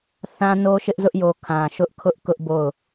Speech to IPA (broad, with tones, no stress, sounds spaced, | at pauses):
θ ã˦ n o˦ ʃ ɪ˦ ʔ z ʊ˦ ʔ j o˨ kʰ ã˨ ʃ ʊ˦ ʔ kʰ ʊ˦ ʔ k ʊ˦ ʔ b o˦˨ ʊ̯